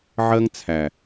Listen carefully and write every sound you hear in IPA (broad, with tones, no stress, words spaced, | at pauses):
ʕɜ˦ŋt͡sʰæ˨